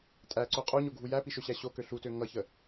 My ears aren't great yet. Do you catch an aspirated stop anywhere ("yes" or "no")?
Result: no